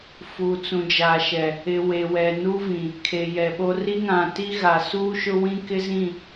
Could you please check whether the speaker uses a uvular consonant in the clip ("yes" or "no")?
no